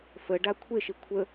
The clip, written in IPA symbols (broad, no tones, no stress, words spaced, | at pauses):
fəɖa kʷʰeʃi kʷʰə